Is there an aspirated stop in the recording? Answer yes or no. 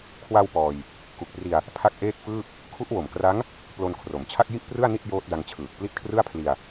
yes